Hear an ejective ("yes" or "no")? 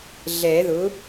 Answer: no